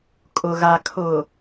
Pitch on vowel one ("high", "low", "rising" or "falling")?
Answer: low